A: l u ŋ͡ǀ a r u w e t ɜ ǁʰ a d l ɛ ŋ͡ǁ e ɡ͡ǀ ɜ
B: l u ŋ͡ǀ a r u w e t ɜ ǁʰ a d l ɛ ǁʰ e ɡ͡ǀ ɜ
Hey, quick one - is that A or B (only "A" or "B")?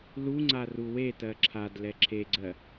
B